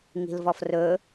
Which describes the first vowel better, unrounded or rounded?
unrounded